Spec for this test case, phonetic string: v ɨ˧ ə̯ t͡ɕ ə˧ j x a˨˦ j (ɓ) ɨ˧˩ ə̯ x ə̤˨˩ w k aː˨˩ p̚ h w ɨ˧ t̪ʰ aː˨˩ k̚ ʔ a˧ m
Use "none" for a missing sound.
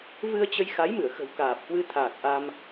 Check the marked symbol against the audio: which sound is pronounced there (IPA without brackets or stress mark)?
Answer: m